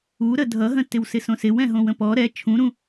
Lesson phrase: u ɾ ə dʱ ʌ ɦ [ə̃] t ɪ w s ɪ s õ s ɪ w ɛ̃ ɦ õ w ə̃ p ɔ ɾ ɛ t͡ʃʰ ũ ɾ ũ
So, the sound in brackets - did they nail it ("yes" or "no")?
yes